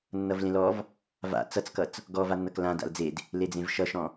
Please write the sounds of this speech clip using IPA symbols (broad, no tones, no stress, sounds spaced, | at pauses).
nː ʌ v l ẽ l ɔ v | v a̰ t͡s ʌ t͡s k ʌ t͡s | ɡ ɔ v a nː ʌ k l ã d a̰ l d͡z e d | l e d͡z ẽ v ʃ ʌ ʃ ɔ̃